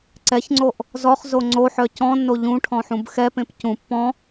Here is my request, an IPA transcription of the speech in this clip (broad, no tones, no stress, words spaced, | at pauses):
ǀɛçŋ͡ǀoʔ | zɔχzo ŋ͡ǀoħœ cɔ̃nːo ʎũʈʰɔ̃ħũb xɛpẽp cũ pːɔ̃